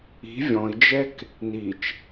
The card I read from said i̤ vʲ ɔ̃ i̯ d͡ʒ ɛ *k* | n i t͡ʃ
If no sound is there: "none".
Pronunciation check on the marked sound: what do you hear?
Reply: k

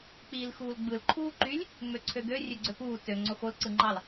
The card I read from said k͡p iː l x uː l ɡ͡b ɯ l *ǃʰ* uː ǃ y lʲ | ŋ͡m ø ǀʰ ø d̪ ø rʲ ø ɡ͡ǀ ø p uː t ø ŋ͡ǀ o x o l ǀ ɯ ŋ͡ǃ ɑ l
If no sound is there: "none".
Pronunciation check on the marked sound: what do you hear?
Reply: ǃʰ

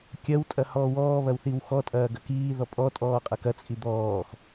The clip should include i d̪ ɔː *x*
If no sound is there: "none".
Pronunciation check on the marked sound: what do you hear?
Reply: x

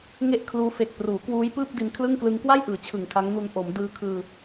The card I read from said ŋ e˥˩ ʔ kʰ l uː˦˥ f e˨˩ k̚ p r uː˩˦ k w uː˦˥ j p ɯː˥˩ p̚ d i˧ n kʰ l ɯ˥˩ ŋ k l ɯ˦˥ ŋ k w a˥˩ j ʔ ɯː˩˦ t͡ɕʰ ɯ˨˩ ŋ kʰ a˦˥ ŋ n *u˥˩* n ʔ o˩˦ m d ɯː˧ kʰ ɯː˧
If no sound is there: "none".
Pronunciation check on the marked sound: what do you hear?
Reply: u˧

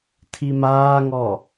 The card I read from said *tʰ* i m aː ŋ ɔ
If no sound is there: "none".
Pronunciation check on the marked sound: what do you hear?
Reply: tʰ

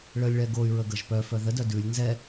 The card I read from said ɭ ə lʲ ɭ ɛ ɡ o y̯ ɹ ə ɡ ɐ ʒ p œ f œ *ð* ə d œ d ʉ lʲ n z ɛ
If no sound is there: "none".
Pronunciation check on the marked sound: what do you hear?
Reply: ð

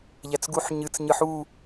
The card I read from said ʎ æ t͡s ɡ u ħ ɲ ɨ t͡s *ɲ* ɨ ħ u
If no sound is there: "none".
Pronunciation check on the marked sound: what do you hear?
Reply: ɲ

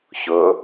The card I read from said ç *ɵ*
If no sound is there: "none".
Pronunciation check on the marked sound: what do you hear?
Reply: ɵ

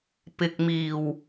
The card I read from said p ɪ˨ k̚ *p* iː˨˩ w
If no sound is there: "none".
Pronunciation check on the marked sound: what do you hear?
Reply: m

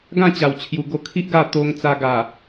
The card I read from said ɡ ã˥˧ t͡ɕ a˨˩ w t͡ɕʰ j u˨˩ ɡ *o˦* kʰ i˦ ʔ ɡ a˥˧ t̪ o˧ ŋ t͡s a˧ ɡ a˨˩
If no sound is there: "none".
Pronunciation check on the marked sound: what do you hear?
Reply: o˧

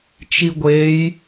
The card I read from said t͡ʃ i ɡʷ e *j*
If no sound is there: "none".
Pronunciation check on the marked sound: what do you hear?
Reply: j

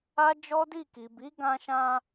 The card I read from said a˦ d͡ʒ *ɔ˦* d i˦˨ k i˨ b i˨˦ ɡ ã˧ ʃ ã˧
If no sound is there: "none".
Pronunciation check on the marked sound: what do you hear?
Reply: ɔ˦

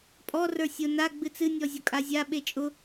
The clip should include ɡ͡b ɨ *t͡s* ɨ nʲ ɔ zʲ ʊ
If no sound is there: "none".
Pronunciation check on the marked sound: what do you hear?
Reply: t͡s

